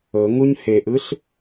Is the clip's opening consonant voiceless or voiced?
voiced